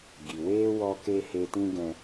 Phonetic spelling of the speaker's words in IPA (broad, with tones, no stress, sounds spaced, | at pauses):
ɡ i˨ w eː˦ w ɔ˧ k e˧ h e˧ t ĩ˦ ɡ ɛ̃˧